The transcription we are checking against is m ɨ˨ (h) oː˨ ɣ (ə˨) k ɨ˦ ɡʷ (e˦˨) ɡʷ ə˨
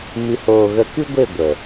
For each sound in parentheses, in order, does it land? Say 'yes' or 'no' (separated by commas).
yes, no, yes